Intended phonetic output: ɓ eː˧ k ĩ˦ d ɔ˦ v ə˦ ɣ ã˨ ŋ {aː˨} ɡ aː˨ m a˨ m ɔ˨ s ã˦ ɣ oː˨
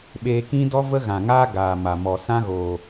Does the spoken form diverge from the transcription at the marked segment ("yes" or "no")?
yes